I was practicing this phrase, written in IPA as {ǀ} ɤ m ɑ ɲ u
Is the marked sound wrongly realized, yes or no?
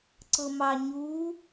no